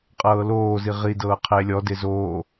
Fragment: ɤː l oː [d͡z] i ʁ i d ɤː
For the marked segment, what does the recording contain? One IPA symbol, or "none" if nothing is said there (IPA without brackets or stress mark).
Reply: z